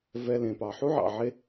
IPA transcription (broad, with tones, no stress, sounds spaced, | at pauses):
v ɛ˧ l ẽ˩ p ɑ˩ ħ u˥ ʕ ɑ̰˩ ʕ e˧